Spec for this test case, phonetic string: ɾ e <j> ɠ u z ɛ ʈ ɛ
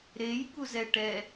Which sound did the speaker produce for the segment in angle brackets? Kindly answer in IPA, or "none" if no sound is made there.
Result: j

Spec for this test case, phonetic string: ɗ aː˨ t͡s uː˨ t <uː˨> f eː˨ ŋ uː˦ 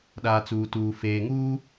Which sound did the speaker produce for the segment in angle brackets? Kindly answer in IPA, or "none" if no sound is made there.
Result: uː˨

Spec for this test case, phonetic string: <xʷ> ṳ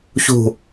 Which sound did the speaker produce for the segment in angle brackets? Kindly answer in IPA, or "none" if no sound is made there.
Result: ç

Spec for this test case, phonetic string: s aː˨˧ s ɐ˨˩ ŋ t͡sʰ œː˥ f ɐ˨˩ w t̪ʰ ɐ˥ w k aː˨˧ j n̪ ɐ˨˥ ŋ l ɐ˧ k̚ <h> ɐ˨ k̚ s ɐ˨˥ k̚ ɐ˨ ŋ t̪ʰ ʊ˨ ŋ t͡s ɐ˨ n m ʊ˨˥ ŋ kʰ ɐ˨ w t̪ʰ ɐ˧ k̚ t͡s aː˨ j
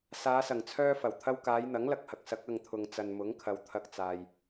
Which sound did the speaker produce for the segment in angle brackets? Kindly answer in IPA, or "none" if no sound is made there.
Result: h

